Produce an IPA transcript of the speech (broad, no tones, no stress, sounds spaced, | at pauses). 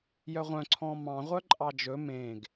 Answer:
j œ ʁʷ œ̃ ǀʰ ɔ̃ m ɑ̃ ʁʷ œ ǃʼ ɑ d͡ʒ ɵ m ẽ ɡ